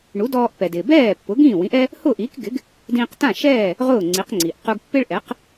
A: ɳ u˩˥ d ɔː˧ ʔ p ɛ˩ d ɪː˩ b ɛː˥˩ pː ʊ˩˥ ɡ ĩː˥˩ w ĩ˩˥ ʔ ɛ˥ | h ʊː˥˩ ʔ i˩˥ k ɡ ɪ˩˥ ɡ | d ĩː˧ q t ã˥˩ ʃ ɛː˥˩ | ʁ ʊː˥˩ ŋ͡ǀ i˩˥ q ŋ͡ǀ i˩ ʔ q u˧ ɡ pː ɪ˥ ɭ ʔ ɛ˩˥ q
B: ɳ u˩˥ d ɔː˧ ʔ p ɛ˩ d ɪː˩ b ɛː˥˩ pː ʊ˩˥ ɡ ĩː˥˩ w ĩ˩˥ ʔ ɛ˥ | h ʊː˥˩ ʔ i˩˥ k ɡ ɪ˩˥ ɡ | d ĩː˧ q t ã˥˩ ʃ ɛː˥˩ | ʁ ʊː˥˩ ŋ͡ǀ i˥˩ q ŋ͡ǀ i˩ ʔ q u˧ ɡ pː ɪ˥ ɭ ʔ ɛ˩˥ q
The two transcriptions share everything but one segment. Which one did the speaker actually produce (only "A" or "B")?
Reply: A